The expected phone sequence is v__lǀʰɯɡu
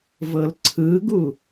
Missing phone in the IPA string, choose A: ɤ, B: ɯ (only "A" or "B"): A